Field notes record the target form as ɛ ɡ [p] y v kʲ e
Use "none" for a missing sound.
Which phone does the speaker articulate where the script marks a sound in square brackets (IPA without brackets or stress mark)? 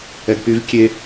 p